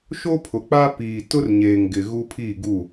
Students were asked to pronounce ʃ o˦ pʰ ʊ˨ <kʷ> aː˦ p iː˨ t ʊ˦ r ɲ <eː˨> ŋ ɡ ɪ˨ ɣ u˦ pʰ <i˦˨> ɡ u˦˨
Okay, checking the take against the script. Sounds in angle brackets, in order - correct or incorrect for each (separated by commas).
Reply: incorrect, correct, incorrect